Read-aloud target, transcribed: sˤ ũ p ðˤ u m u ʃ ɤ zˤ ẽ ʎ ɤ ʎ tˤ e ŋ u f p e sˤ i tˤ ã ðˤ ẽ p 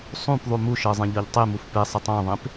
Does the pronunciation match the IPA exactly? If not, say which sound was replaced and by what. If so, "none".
ŋ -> m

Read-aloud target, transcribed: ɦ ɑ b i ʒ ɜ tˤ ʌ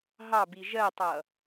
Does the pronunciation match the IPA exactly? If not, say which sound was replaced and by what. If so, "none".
none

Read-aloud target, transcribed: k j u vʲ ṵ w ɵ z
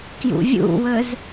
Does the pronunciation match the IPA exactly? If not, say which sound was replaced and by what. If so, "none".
u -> ṵ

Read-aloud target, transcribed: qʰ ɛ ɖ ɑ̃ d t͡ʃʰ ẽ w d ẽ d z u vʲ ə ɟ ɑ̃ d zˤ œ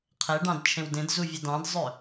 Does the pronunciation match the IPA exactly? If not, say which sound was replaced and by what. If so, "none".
ɟ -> d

